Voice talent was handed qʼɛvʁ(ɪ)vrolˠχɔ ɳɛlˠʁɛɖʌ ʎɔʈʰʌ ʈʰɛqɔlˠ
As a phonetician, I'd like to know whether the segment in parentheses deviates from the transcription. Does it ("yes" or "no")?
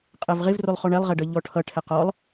no